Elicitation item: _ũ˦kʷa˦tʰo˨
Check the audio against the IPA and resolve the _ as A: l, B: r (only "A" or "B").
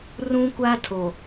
B